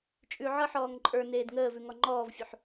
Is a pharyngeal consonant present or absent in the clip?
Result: present